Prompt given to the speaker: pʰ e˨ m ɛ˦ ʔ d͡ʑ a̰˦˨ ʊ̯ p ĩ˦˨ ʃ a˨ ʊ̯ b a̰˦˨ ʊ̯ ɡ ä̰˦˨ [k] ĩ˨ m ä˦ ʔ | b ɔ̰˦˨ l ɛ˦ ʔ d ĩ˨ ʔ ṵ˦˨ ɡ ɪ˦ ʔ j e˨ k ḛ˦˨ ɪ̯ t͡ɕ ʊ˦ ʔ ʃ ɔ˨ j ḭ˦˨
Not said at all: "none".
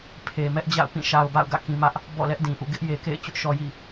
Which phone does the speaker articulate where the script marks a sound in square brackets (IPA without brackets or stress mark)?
k